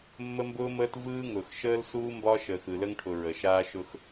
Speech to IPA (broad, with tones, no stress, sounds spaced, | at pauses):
mː ə˦ m b ʊː˦ m əː˦ t v ɯː˦ ŋ ʊ˨ x ʃ əː˦ l s uː˦ m b ɒ˦ ʃ əː˨ x ɯ˨ l ə˦ ŋ ʈʰ ʊ˨ ɹ ə˨ ʃ aː˦ ʃ ʊ˦ x